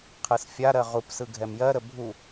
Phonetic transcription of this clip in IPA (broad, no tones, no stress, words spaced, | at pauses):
qʰɯsfʲaɾɜ ʁupsɯ ɡʱɛmjɜɾə bʱu